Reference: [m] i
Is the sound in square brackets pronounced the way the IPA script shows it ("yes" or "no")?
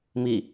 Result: yes